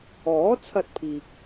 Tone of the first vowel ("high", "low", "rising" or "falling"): rising